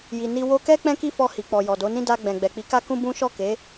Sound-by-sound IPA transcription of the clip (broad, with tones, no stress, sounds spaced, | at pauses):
j i˨ n i˧ w o˧ k ɛ˦ k͡p ɛ̃˦ k i˦ f ɔ˧ h i˨ k͡p ɔ˨ j ɔ˨ d o˨˦ n ĩ˦ d a˧ ɡ͡b ɛ̃˨ ɡ͡b ɛ˨ k͡p i˨˦ k a˦ k ũ˦ b ũ˦ ʃ ɔ˦˨ k e˨˦